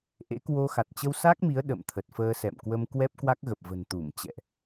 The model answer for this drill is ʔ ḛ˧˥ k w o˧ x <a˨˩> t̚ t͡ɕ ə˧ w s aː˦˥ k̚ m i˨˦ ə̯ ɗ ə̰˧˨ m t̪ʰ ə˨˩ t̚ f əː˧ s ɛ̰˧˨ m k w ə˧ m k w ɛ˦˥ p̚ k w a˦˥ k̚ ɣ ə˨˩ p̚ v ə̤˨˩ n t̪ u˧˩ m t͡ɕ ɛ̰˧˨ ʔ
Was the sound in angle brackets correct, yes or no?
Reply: yes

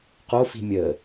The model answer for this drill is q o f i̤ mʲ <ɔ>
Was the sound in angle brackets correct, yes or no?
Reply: no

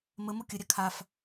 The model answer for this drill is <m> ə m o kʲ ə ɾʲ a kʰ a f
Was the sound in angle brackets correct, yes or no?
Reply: yes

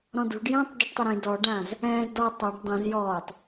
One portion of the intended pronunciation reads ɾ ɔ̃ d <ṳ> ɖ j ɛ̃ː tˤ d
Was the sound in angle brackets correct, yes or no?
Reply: yes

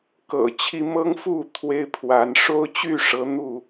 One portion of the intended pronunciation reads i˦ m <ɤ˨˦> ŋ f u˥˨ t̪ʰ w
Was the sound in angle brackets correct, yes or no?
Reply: no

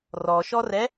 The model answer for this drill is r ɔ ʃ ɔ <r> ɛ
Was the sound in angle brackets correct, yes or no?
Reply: yes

